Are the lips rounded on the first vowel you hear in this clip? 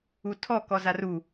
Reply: yes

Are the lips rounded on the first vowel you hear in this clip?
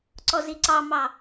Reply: yes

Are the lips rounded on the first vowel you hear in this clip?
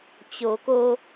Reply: yes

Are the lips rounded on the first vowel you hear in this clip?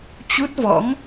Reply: yes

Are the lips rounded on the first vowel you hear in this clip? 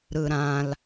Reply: no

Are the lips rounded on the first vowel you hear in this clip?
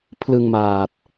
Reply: no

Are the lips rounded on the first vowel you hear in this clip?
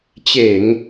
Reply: no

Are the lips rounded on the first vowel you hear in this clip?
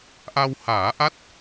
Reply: no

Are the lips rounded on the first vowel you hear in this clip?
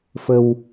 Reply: no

